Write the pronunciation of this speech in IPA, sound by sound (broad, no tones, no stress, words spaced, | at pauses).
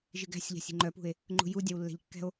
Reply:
ʒɨɡæ̤sʲʎa̤sʲ i̤ŋ͡ǃœpṳe̯ | ŋ͡ǃṳju dʲawlːɛ̤ʎkːɛ̤o̯